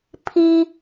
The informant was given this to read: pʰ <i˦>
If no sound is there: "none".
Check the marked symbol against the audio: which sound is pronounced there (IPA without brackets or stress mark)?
i˦